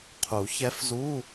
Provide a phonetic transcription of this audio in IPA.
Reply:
qʰ u˨˩˦ ç ɛ˧˥ f z u˧˥˧

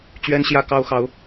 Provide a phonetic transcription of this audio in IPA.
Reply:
t͡ɕ ɥ ɛ˦ n ɕ j ä˦ k ɑ˦ ʊ̯ x ɑ˨˦ ʊ̯

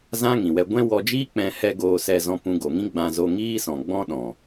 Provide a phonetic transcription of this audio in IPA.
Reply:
z ã˦ ŋ ĩ˨ w ɛ˧ ɡʷ ɛ̃˦ w ɔ˧ d͡ʒ iː˦ k͡p ɛ̃˧ h ɛ˦ ɡ oː˧ s ɛ˧ z ɔ̃˧ p ũ˧ ɡ o˨ ŋ ĩ˦ ɡ͡b ã˧ z o˧ ŋ iː˦ s ɔ̃˨ ɡ͡b ɔ̃˦ ɗ ɔ̃˨

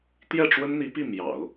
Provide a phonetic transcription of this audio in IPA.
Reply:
t̪ j ɛ˥˩ ʈ͡ʂ w ə˥ n n̪ i˧˥ p i˥˩ m j ɑ̰˨˩˦ ʊ̯

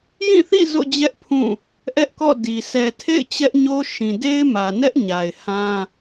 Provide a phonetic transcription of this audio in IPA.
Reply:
j ĩ˦˨ θ ḭ˦˨ z o̰˦˨ d͡ʑ ɛ˦ ʔ pʰ ũ˦˨ | ʔ ɛ˦ ʔ k ɔ̰˦˨ d i˨ sʰ ɛ˨ tʰ ḛ˦˨ ɪ̯ t͡ɕ ɛ˦ ʔ ɲ o˦ ʃ ĩ˨ d e˦ ɪ̯ m ä˨ n ɛ˦ ʔ ɲ a˨ ɪ̯ h ã˦

